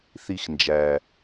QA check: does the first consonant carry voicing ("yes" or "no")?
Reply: no